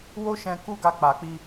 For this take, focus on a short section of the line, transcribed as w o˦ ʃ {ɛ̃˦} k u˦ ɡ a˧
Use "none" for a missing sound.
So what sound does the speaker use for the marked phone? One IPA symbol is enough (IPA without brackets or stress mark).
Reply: ɛ̃˧